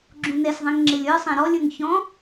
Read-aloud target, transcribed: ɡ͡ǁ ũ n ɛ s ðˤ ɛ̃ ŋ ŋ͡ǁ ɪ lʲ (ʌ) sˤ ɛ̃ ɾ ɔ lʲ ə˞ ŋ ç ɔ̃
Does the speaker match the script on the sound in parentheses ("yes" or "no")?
no